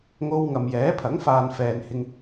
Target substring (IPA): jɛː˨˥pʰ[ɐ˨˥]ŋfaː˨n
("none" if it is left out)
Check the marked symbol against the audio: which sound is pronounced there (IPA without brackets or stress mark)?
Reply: ɐ˨˥